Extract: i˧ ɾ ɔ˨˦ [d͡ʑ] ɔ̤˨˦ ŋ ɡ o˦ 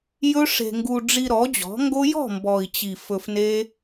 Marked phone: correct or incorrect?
correct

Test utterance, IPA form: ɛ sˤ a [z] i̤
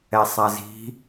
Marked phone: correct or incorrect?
correct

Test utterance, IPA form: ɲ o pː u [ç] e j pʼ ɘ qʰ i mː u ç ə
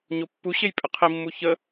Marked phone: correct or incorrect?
incorrect: ɕ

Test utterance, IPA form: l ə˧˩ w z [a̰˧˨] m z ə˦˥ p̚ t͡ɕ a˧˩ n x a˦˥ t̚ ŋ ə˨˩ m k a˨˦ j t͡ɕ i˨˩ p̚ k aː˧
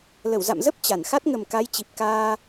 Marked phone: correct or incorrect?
correct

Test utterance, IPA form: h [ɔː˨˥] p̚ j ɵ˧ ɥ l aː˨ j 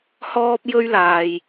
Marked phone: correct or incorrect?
incorrect: ɔː˧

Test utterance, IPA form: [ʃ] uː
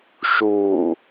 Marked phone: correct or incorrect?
correct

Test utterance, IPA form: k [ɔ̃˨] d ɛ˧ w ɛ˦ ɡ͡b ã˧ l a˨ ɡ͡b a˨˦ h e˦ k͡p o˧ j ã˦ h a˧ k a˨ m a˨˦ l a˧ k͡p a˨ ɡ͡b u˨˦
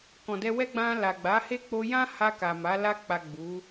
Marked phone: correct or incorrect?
correct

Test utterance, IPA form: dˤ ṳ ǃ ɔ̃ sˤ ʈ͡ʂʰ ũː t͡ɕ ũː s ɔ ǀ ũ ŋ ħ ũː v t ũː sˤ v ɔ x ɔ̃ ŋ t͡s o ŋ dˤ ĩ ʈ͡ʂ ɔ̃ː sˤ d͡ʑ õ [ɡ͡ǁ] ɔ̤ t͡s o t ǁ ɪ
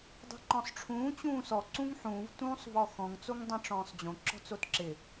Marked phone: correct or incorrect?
incorrect: ǁ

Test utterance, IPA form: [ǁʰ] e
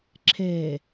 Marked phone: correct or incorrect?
correct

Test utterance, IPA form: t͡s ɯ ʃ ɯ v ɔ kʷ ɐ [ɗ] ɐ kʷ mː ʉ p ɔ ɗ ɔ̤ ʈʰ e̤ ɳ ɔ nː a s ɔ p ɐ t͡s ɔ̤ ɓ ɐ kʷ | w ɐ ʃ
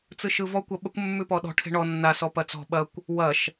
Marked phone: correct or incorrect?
incorrect: ɓ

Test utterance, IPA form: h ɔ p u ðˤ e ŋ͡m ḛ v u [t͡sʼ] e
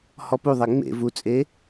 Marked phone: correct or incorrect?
correct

